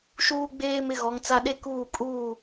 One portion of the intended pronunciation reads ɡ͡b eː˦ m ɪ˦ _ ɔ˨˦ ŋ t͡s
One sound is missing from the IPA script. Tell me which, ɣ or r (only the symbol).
ɣ